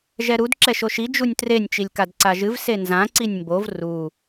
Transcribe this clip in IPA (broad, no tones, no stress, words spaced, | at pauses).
ʒɛɾud ǁɛʃoʃi d͡ʒunʲtrenʲ t͡ʃilʲkadǀaʒɨv senzã ǀinʲmbov ru